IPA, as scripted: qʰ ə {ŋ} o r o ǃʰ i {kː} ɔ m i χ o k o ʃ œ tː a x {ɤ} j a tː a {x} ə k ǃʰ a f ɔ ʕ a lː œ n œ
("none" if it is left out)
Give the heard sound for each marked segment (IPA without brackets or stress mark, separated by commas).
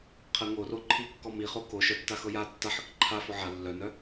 ŋ, kː, ɤ, ħ